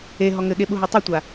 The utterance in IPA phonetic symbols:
e ɦ ɔ ŋ ɘ ɠ e ɓ u ɦ ɔ tˤ i tʷ a

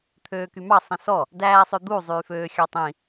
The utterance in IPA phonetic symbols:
t̪ʰ øː k y m ɑ sˤ ĩ s ɔ | d æː sˤ ø d̪ u zˤ yː f øː xʲ ɑ tˤ ĩ

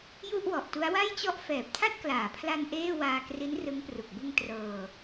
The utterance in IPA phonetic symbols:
j u˥˩ ʔ w ɔ˨˩ ʔ t u˦˥ a̯ w a˥˩ j t͡ɕ ɔ˥˩ ʔ f ɛː˨˩ p̚ tʰ a˥˩ t̚ k l aː˩˦ pʰ l a˧ n ʔ eː˥˩ w aː˧ k r i˦˥ n r ɯ˦˥ ŋ p r u˨˩ k̚ b ɯ˧ ŋ t r ɤː˧

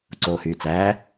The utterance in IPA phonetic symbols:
ǀ oː h yː t͡s æː

